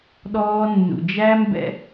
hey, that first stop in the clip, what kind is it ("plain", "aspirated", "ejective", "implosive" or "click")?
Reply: implosive